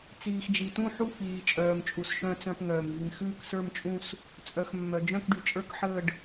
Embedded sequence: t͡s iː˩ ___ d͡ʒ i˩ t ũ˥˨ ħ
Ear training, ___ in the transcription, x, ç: x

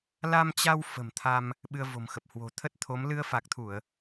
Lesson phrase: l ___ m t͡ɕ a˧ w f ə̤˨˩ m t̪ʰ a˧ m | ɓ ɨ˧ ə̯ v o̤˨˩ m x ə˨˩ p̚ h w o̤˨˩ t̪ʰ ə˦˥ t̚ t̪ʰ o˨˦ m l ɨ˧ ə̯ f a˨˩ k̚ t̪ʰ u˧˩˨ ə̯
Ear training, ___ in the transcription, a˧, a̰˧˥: a˧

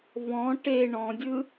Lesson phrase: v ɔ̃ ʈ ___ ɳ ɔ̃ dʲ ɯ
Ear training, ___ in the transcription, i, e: e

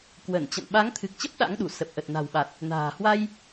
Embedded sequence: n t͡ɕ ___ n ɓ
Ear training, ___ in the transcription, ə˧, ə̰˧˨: ə̰˧˨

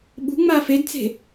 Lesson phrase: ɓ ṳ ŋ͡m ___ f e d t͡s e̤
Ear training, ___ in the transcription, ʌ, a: a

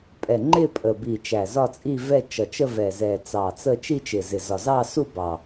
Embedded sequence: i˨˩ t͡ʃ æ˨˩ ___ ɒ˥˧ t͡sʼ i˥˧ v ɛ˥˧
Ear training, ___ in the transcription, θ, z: z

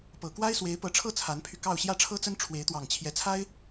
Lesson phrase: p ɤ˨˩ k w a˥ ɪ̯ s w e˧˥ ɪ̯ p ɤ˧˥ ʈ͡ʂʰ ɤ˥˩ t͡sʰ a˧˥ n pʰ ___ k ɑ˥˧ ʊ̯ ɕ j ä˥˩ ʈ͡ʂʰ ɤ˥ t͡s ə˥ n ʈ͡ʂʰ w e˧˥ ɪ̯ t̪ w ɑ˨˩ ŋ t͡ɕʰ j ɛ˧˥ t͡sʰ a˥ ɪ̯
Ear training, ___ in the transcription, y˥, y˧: y˧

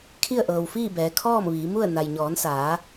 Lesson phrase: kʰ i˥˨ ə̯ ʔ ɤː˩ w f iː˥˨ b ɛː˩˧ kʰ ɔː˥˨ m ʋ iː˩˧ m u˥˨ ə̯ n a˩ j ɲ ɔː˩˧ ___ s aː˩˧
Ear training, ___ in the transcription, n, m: n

